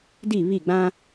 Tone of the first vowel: falling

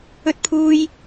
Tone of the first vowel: high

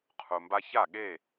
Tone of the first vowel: low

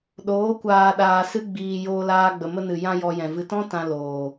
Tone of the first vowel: rising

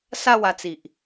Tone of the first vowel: falling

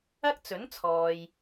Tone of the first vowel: high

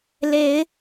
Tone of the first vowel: rising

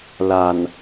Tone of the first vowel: low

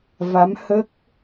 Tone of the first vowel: rising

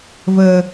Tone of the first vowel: low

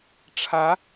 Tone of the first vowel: rising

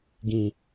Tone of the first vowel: low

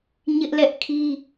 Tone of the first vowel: high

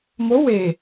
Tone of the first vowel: rising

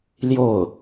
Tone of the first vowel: falling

